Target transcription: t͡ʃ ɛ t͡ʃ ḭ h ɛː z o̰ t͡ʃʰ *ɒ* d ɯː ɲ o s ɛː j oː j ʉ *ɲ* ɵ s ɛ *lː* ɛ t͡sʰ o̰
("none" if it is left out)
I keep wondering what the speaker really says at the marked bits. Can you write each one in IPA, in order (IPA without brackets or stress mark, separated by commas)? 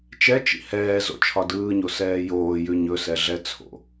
ɒ, ɲ, ɮ